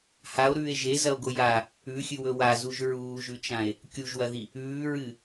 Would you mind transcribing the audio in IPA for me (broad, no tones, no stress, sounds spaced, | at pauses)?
h a o̯ ɾ ʉː e̯ ʒ e z ɐ o̯ ɡ o j a | ʉ xʲ ɨ w ɵ w a z u ʒ ɹ uː ʒ ʉ t͡ʃ ã e̯ | kʲ u ʒ w ɐ ð i | ʉː ɹ ɨ